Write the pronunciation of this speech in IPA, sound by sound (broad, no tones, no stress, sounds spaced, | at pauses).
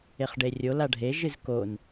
e χ ɖ e rʲ o l a ɖʱ e ʒ ɨ z k o n